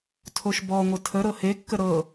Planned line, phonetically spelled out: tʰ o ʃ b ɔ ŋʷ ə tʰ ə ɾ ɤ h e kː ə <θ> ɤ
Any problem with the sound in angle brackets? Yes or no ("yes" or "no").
yes